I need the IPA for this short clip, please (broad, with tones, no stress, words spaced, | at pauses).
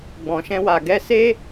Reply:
ɡ͡bɔ̃˨ʃɛ̃˧wa˨ ɡɛ˧se˦